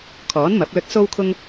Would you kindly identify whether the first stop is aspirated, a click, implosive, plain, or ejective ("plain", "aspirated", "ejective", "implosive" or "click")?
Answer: aspirated